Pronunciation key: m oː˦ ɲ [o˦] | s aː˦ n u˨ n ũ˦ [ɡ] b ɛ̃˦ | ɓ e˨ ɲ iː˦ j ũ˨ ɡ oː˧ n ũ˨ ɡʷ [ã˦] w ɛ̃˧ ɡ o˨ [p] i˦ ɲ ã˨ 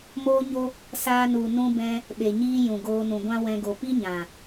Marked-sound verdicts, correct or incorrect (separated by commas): correct, incorrect, correct, correct